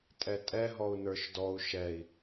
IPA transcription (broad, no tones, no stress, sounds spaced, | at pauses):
tʼ ɛ tʼ ɛ ɦ ɔ u̯ n ə˞ ʃ d ɔ u̯ ʃ ɛ i̯